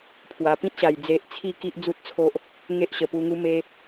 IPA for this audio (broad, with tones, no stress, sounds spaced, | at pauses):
pʰ w a˨˩ p ĩ˦ t̚ ɕ a˨˩ j d͡z e˨ ʔ t͡sʰ i˧ k i˦ ʔ d͡z u˦ t̚ t͡sʰ o˦ ʔ | ŋ e˦ ʔ ɕ ə˨˩ p u˧ ŋ u˦ m e˦